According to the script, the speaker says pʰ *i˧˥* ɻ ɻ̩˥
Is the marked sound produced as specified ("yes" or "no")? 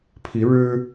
yes